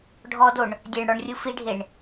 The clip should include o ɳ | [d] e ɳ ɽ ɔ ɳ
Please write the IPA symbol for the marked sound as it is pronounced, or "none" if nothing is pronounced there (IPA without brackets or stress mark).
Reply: dʲ